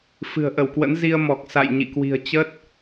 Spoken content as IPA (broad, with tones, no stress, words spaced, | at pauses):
fɨ̤˨˩ə̯ʔə˧˩w kwə̰˧˥nzi˧ə̯ mɔ˨˩k̚ sa̰˧˨j ɲḭ˧˨kwi̤˨˩ə̯ t͡ɕə˦˥t̚